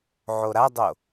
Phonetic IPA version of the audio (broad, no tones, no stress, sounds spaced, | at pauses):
ʕ o ɾ a dˤ o